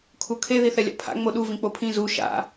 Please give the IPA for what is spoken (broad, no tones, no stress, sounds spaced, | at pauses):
kʰ u kʰ e ð i θ ɛ lʲ a̰ pʰ a̰ ŋ͡m o ɗ u v ĩ k͡p o pʰ ĩ z u ʃ a̰